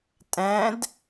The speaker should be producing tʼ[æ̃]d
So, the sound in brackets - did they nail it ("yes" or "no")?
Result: yes